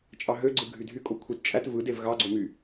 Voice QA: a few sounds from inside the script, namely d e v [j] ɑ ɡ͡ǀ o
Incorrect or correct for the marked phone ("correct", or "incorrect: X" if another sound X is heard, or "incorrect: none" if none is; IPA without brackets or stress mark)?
incorrect: ɣ